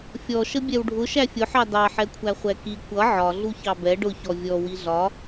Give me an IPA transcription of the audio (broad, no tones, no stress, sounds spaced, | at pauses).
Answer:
fʲ ɔ ʃ ə bʲ ɛ w ɖʱ ʊ ʃ æ fʲ ʊ ħ ɑ d ɑ ħ ɛ kʷʰ æ χʷ ɛ k i kʷ ʌ ʕ ɒ ɮ u ç ɑ b ɛ ɖ ʊ ç ɔ vʲ ɔ w i ɮ ɒ